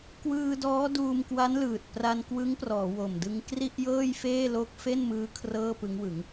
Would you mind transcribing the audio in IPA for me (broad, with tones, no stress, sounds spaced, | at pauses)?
k w ɯː˧ d ɔː˦˥ d uː˧ m k w a˦˥ n l ɯː˨˩ t̚ p r a˧ n k w ɯ˦˥ ŋ p r ɔː˩˦ w o˨˩ m d ɯ˧ ŋ k r i˥˩ ʔ j ɤː˥˩ j f eː˥˩ l o˦˥ k̚ f e˥˩ n m ɯː˦˥ kʰ r ɤː˥˩ p ɯ˦˥ ŋ w ɯ˩˦ ŋ